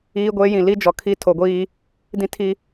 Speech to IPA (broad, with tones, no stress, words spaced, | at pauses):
iː˦ɡʷeː˦jĩ˨ li˦d͡ʒɔ˨kʰi˦ tʰo˨ɡʷiː˦ | dĩ˦tʰi˦